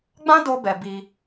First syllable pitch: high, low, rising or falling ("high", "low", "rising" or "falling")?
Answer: high